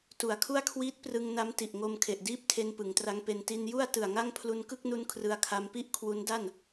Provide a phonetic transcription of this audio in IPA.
tu˩˦a̯kʰu˥˩a̯kʰwiː˦˥t̚prɯ˧ŋ na˦˥mti˨˩ʔŋo˧m kʰe˨˩ʔdiː˥˩p̚tʰe˧n pɯ˩˦ŋtra˦˥ŋpe˧n ti˧nju˥˩a̯ tɯ˨˩a̯ŋa˥˩ŋ pʰlu˧nkɯ˥˩k̚nu˧n kʰrɯ˧a̯kʰa˧mpi˥˩ʔkʰwu˦˥n da˥˩n

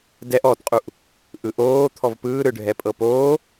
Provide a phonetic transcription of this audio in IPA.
dɛʔ ɔtqʼuʔ | ʔɯʔoː t̪ʰɔvpɯːɾɯɖʱɛ pʼɤpoː

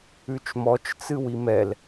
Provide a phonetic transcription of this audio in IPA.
ʉt͡ʃmɔt͡ʃ t͡sɨwimɛl

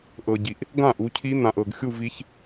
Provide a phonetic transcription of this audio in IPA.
ʔɤ˨ɟi˨ʔ | ɡã˥˩ ʔu˨˦cʰi˦˥ n̪ã˨ʔ ɤ˨ɡ xʲu˥˧vi˦˥ç

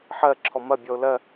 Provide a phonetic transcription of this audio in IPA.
ħɜ ǁʰɔmɐbʲɔʊ̯ lɜ

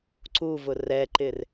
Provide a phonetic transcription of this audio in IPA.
ǀuvʊ rɛǃɪr

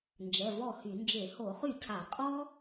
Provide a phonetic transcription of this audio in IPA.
nd͡ʒɛ˩˧˩vɔ˥˩ hy˧˩˧nd͡ʒe˧˩˧ ho˧˩˧χy˥˩cʰa˧˩˧ qʼɔ˦

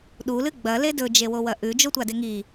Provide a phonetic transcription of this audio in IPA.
ɗulɨ ɡ͡bɐle dɵd͡ʒewowɐ ʔʉd͡ʒotʷade ŋi

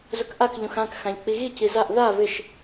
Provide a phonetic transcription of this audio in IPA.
zʊkʔak ʎũxãk xãʎk͡piɣi cizaʔ ða βɪʃ

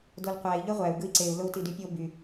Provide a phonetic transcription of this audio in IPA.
dolqʷæi̯ ʎøʁʷæu̯ ɡɯi̯ǀeu̯ lou̯tidypʲo by

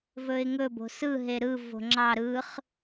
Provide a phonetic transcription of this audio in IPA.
vɵɪ̯ŋɵ bo̤sɯ ɦeɾɯ vo̤ŋ͡ǁɑ ɾɯχ

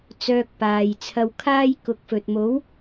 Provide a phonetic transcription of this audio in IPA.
t͡sœː˧k̚paː˨jt͡sʰɐ˧w kʰaː˥jkʊ˨˥k̚fɵ˨t̚ mo˨˥w

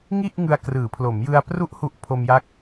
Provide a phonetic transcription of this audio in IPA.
ŋi˥˩ʔ ŋɯ˧a̯krɯː˩˦pʰlo˩˦mjɯ˧a̯ pru˦˥ʔhu˨˩ʔ pʰo˧mja˦˥k̚

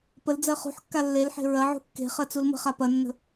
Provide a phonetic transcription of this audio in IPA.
pəl d͡zɜχṳħkːa lːelħe̤ ɹɐʕṳ kːe̤ χɜt͡sulmə̤χa pɐnːə̤

